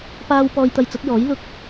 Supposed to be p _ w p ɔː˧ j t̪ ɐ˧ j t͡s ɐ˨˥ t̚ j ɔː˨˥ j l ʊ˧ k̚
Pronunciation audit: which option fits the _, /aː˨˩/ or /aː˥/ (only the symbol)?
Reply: aː˥